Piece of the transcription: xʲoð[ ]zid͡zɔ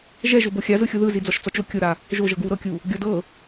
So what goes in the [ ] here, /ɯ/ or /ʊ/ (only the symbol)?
ɯ